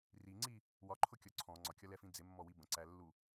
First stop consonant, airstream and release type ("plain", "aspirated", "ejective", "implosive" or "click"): click